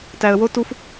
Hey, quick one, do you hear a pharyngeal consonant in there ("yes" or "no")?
no